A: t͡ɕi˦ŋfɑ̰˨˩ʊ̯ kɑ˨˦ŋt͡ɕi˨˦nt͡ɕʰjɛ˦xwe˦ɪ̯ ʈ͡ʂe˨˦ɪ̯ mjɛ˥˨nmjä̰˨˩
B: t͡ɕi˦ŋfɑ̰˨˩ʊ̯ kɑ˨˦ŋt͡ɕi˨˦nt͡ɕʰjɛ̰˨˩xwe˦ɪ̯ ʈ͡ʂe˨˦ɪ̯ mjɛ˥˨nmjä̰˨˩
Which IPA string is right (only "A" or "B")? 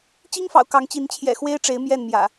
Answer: B